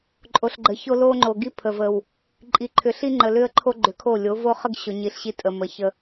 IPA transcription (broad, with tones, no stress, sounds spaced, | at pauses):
ǃʼ o˨ ɬ ɡ͡ǃ ə˨ ç o˦ l o˦ ŋ͡ǃ o˨ ɡ i˦ pʰ ə˨ v ə˨ w | ǃʼ i˨ ǃʰ ʏ˨ ɬ i˦ ŋ͡ǃ ə˨ l ʏ˦ ə̯ ǃʰ o˦ ɡ͡ǃ ʏ˨˦ kʰ o˦˨ lʲ o˨˦ v o˦ χ ə˦ ɡ ɕ o˨ ɲ i˨ ɬ ɕ i˦ tʼ ə˨ m ə˨ ç ə˦